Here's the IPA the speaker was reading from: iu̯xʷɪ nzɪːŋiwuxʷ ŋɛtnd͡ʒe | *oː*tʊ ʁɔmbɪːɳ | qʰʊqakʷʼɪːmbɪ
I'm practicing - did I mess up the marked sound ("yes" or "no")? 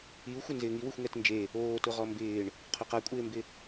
no